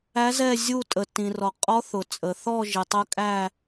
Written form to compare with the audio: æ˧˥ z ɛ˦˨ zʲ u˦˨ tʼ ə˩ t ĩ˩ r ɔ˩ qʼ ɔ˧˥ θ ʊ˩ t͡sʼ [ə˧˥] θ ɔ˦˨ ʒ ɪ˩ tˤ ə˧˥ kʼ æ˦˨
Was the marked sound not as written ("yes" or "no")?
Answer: yes